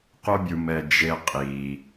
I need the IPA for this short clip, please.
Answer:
qo˦bʲu˨mɛ˨ d͡ʒe˨qʼi˩

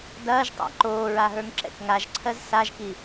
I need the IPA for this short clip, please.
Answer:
dɐːʒtˤa̰ ǃoːɹaɦə˞ŋǁɛ̰k ŋaʒǀʰɜz saʒki

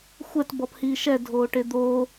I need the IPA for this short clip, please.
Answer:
xʷɛt bɔphiːʃɛ dʱoːʈed̪oː

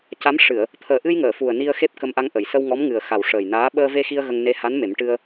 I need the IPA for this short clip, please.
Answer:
ca˧˥mʂɨ˨˩˨ə̯ | t̪ʰəː˨˩ʔɨ˧j ŋəː˨˩˨fu˨˩ə̯ ni˧ə̯ xe˦˥p̚kə˧mʔa˧ŋʔə˨˩˨j sə˧wŋɔ˧˥mŋɨ˨˩ə̯xa˨˩w ʂəː˨˩jnaː˧˥ ɓəː˧ve˧xi˧ə̯ ɣə˧ŋ ne˧ha˧˥n me˨˩˦mʈɨ˧ə̯

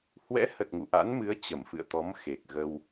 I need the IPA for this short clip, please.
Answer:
hwɛ̰˧˥hə˨˩t̚ ŋṵ˧˨ ʔa̰˧˥nmɨ˨˦ə̯ t͡ɕə˧˩mfɨ̰˧˨ə̯t̪ɔ˨˦m xe˨˩k̚ ɣə˧w

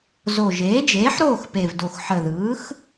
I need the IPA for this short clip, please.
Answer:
zo˨˩ ʒeː˩˥d͡ʒeː˩˥ħɾoː˥˨x pe˨˩vdo˨˩x ħə˨˩ðɯː˩˥x

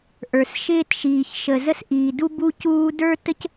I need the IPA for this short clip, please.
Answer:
ʔə˞˩sʃɪː˦tʃiː˩çʃə˩ zə˦sʔiː˩du˦ bu˦cuː˦ də˞˥tə˥c

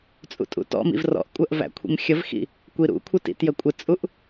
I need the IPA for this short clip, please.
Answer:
t͡sʼṵtʼṵtɔ̰mḭv rɔ̰ʔkʷʼɜʔ væ̰kʷʰḭmxʲəvxḭ | kʷiɾṵkʷʰɪ tḭtjəkʷʼɪt͡sʼuʔ

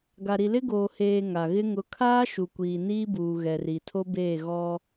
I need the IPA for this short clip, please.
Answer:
ɡa˨ɾi˨lɪ˦ ɡoː˨heː˨ ŋa˨ɣɪ˦ ŋʊ˨˦kʰaː˦ ʃu˨kʷiː˨niː˦buː˨ ɣɛ˨ri˨tʰo˦beː˦˨ ɣɔ˦

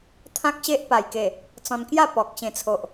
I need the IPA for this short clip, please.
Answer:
t̪ʰã˦k̚ɕe˦ʔpa˨˩j ke˨˩ | t͡sɔ̃˧nkja˥˧pɔ˨k̚ ɕẽ˨˩t͡sʰo˨ʔ

